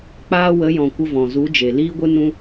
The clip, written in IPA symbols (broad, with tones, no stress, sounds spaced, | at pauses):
k͡p aː˧ w ə˨˦ j ɔ̃˨ kʷ ə˧ v ɔ̃˨ z u˨˦ d͡ʒ e˨ l iː˦ ɡʷ ɨ˦ n ũ˦